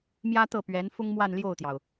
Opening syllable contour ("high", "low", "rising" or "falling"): high